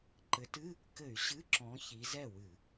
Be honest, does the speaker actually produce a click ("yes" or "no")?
yes